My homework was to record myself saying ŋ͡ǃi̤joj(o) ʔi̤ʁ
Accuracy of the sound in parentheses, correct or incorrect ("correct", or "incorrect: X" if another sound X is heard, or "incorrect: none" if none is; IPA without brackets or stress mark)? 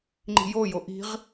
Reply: correct